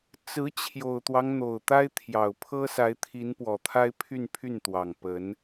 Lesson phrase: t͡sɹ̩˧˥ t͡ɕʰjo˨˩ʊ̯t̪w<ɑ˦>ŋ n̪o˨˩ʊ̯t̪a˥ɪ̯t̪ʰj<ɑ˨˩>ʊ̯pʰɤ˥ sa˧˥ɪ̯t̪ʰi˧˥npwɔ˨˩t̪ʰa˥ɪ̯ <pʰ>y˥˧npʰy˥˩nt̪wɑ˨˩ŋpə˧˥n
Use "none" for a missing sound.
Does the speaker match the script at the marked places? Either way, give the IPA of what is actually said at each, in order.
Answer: ɑ˦, ɑ˨˩, pʰ

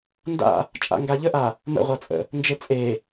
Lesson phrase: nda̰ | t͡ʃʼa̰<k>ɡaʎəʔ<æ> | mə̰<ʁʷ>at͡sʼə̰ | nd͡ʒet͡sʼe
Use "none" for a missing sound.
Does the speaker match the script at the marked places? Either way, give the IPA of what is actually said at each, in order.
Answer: ŋ, a, ʁʷ

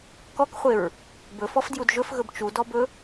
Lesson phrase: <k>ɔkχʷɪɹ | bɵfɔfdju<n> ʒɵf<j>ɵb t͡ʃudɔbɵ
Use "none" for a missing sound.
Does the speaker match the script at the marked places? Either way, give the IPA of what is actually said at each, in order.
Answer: k, d, ɣ

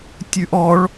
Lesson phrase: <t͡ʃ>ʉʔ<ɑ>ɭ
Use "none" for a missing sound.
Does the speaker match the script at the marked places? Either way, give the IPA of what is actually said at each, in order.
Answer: tʲ, ɔ

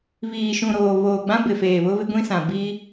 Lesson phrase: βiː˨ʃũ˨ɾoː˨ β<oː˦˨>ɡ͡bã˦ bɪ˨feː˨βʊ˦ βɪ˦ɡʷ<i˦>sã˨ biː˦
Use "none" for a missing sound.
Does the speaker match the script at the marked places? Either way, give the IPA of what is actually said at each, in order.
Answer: oː˨, ĩ˦

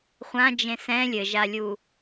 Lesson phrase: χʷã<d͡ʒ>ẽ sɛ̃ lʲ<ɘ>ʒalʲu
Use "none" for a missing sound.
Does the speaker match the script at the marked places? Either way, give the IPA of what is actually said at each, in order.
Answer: d͡ʒ, ɘ

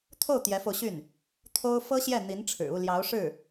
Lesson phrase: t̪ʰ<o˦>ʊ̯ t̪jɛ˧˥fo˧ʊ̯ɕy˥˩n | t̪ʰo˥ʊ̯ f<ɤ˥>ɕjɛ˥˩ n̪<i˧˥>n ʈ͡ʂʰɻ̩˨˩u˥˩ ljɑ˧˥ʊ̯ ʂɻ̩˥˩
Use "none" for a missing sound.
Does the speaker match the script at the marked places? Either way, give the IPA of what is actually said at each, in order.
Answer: o˥˩, ɤ˥, i˧˥

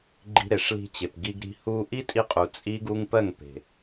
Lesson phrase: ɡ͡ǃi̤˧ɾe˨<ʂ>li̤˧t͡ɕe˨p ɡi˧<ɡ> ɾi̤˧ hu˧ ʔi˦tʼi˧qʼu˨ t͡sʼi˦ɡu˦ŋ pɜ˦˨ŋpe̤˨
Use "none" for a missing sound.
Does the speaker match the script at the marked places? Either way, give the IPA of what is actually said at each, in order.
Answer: ʂ, ɡ

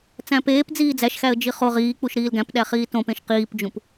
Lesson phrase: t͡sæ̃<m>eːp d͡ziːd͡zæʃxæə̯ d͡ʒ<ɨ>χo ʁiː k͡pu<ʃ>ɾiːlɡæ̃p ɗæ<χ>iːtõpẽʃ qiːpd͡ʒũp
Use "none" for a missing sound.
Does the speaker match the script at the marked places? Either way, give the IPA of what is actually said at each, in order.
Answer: p, i, ʃ, χ

